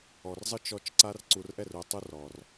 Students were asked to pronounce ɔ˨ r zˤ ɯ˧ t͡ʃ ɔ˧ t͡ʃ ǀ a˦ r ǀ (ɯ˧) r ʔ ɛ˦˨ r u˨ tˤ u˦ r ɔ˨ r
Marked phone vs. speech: incorrect: u˧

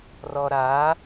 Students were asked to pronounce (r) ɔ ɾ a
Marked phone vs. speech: correct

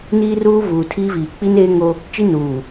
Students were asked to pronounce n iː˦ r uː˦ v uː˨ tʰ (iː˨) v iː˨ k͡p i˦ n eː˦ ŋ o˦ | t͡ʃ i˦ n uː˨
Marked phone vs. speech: incorrect: iː˦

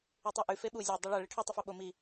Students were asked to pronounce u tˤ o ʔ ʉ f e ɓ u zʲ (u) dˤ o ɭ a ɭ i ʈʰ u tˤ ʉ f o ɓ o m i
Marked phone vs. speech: incorrect: o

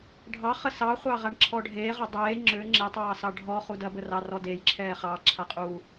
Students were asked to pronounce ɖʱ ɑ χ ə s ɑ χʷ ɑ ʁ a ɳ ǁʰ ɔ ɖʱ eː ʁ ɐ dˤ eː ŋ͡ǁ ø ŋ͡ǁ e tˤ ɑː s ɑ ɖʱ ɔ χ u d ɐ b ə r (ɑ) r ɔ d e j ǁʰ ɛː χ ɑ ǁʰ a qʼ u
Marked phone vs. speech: correct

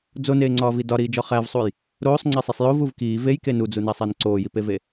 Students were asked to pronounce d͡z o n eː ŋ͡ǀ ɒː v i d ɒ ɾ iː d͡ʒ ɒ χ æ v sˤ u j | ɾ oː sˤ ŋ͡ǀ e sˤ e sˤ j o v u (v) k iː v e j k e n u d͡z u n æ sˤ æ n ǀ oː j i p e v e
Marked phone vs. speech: correct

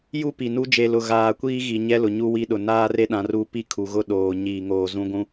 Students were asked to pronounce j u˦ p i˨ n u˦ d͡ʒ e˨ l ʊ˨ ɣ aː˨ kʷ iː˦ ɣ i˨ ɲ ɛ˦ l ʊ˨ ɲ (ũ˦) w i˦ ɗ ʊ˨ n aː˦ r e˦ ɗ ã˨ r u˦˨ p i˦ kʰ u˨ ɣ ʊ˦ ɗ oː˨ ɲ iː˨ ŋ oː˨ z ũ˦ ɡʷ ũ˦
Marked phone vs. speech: incorrect: u˦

